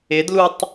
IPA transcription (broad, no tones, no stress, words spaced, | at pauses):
ɪdlutˤ